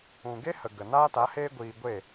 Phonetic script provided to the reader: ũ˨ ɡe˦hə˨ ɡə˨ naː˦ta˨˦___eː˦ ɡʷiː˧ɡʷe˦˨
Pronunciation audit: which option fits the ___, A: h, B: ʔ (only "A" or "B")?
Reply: A